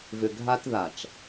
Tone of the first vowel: low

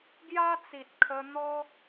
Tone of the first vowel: high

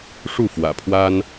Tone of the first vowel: falling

